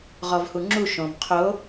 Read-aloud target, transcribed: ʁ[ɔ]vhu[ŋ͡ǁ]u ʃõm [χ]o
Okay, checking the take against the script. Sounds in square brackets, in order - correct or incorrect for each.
correct, correct, incorrect

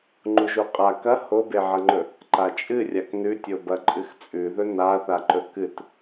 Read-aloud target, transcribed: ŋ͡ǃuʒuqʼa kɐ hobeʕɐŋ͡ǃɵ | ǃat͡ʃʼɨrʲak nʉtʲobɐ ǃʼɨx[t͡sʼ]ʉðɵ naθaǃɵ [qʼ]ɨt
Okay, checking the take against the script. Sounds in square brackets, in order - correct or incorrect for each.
correct, incorrect

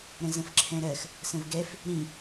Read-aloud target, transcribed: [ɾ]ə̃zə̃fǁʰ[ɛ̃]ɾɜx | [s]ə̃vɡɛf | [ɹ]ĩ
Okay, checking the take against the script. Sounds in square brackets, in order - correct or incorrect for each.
correct, correct, correct, incorrect

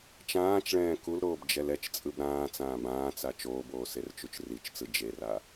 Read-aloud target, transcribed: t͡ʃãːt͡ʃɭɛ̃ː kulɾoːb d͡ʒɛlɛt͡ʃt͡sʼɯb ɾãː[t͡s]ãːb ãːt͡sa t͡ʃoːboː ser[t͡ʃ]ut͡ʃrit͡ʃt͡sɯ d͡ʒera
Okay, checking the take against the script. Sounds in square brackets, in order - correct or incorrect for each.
correct, correct

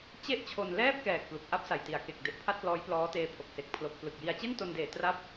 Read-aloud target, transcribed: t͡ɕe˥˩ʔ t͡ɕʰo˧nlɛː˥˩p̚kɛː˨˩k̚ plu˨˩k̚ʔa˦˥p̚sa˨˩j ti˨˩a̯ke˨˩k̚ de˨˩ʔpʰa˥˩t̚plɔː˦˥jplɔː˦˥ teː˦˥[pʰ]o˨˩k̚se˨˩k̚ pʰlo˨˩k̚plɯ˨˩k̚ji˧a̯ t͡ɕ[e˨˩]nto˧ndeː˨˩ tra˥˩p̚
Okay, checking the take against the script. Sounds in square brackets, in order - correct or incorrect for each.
correct, incorrect

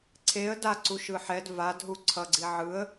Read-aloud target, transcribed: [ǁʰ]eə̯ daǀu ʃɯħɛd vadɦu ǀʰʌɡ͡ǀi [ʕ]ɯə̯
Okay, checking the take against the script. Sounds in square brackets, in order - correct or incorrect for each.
incorrect, correct

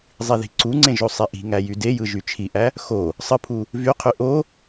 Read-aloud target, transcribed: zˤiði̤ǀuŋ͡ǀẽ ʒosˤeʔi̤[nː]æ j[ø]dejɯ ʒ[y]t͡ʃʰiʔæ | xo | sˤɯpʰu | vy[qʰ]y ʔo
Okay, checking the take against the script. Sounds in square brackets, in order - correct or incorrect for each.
incorrect, incorrect, correct, correct

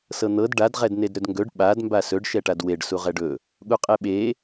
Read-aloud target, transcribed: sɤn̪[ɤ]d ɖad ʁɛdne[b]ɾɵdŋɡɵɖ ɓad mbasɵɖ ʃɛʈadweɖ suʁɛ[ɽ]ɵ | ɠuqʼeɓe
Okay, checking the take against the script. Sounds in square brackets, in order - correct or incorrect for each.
correct, incorrect, incorrect

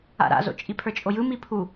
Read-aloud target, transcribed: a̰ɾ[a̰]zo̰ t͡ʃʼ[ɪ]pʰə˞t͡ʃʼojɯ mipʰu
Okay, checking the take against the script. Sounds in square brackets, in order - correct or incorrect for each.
correct, incorrect

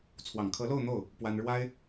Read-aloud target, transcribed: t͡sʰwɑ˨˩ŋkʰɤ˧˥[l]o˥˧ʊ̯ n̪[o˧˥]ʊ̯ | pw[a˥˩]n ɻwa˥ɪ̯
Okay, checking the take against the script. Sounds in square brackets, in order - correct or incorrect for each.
correct, incorrect, incorrect

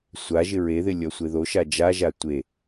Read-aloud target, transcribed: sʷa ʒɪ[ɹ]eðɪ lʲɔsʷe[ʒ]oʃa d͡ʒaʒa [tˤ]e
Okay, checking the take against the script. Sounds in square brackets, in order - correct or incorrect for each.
correct, incorrect, incorrect

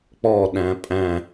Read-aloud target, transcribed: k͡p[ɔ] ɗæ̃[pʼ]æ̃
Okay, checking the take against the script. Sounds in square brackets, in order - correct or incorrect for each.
correct, correct

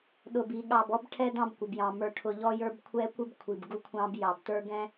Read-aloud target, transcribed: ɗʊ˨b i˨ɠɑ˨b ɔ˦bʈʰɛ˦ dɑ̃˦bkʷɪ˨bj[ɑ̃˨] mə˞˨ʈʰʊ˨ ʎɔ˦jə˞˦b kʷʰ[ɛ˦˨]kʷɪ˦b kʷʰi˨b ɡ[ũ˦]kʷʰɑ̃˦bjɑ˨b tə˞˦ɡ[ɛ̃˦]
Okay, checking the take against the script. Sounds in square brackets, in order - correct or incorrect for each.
correct, incorrect, incorrect, correct

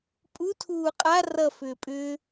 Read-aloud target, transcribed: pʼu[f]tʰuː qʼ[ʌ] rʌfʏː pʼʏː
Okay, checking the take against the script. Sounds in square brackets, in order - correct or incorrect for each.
incorrect, incorrect

